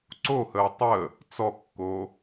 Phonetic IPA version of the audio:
ǀohəː tˤəː | t͡sɔkːoː

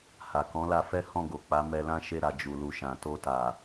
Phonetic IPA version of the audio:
ha˨kɔ̃˨˦la˧fɛ˦ hɔ̃˦˨ɡo˨k͡pa˨˦ mɛ˧lã˦ʃe˦˨ɾa˨ d͡ʒu˨lu˨ʃã˨ to˧ta˨

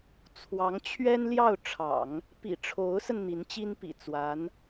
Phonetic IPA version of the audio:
t͡sʰwɑ˧˥ŋt͡ɕʰɥɛ˥nljɑ˥˩ʊ̯ ʈ͡ʂʰɑ̰˨˩˦ŋ | pḭ˨˩ ʈ͡ʂʰo˧˥ʊ̯sə˧n n̪i˧˥nt͡ɕi˥npḭ˨˩ t͡swa˧˥n

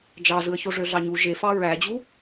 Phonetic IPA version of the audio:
d͡ʒɑzɯə̯çoʐø ɮɑɲu ʒefɑ ɹæd͡ʑu

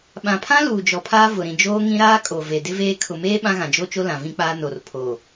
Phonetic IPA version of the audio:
ɓã˨pʰã˦luː˨ d͡ʒɔ˨pʰaː˦ vʊ˨ ɾĩ˨ d͡ʒoː˦ŋĩ˦ ɾaː˦kʼo˨ve˨ dɪ˦veː˦ kʰʊ˨meː˦ ɓã˦ɣã˨d͡ʒo˦t͡ʃo˦ lã˨vĩ˦k͡paː˦ no˨r pʰo˨

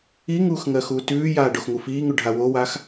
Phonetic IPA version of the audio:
iŋuːx ŋɜxuːtʉːjaː ɖoxŋufiːŋʉ ɖʱawowaːx

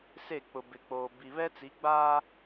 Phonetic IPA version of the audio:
se˦˨k͡pʊ˨bɪ˨k͡poː˨ bi˨βɛ˦t͡si˨˦ ɡ͡baː˦

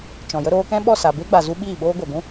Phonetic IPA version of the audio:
t͡ʃɔ̃˨jə˦ ɾoː˧kɛ̃˦ɓɔ˦˨ sa˨be˦ɡ͡ba˨zu˧ ɓiː˦˨ɓoː˦ɡʷa˨ɡʷũ˦

